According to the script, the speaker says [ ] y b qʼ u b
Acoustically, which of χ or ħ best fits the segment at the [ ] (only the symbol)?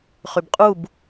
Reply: χ